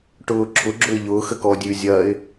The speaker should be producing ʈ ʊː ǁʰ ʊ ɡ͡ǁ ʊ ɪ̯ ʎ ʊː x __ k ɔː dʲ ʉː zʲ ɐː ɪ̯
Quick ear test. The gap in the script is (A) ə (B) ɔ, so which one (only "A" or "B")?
A